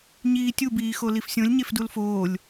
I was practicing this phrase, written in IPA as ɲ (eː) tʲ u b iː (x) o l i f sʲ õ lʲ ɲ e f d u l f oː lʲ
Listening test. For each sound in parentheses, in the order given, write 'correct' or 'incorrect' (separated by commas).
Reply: incorrect, correct